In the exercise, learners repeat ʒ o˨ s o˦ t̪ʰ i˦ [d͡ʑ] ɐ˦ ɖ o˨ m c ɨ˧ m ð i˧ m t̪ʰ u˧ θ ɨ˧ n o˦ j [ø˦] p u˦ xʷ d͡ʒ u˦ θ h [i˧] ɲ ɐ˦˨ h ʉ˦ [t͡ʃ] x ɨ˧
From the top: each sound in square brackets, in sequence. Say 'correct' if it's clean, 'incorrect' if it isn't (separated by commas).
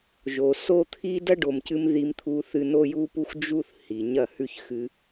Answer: incorrect, incorrect, incorrect, incorrect